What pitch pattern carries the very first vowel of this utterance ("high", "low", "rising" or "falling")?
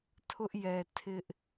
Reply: high